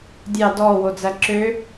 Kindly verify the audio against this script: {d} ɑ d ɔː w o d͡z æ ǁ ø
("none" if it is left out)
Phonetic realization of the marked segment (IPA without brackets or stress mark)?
dʲ